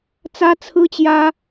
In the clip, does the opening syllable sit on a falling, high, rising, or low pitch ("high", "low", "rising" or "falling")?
high